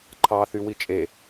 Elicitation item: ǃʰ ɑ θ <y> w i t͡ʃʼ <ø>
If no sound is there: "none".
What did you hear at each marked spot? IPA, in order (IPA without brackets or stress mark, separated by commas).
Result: y, e